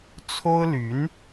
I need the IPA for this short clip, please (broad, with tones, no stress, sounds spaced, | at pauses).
t͡sʰ o˥ ʊ̯ l y˧˥ n